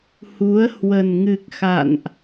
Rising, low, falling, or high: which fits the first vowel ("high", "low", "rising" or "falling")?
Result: rising